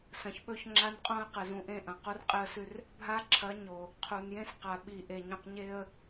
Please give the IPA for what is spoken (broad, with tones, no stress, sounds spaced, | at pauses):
s ɐ̃˨ ç ɓ ɵ˦ ç ŋ͡ǁ a˦ n qʼ õ˦ ə̯ q ɨ˨ z ũ˨ ʔ ẽ˦˨ ʔ ɐ̃˨ q u˦ r qʼ e˦ ə̯ s ʉ˦ r | bʱ a˦ ǁʰ ɐ˨˦ ɲ o˨ | qʰ u˨ n j ẽ˦ s q a˨ ɓ i˨ ʔ e˨ ɲ ũ˨ q ɲ e˦ ə̯